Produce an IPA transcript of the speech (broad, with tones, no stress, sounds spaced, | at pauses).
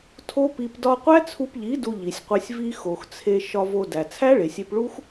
tʰ o˦ p i˧ p d ɒ˧ qʷ æ˦ t͡sʰ u˧ p ʎ i˨˦ d u˧ ʎ i˨ sʲ qʷ e˧ sʲ v i˧ x o˨ x t͡sʰ e˧ ʃ ɒ˧ v o˧ d æ˨ t͡sʰ æ˦ ɭ e˨ sʲ e˧ p ɭ u˦ x